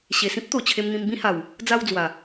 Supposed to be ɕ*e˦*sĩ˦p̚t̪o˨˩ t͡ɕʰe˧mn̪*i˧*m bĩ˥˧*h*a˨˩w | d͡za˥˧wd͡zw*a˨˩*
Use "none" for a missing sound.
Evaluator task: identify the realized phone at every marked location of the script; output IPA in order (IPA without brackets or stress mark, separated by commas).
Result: e˨˩, ĩ˧, h, a˨˩